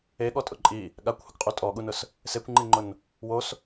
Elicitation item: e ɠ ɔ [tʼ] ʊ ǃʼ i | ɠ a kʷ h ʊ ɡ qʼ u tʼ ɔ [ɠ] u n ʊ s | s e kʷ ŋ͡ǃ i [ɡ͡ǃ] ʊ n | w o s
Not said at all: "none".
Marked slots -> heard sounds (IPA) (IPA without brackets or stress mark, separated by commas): tʼ, ɠ, ŋ͡ǃ